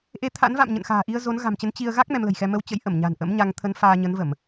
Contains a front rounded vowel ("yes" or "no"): no